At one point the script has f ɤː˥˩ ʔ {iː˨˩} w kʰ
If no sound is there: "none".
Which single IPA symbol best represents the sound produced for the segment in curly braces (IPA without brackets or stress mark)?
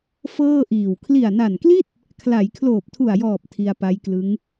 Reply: iː˨˩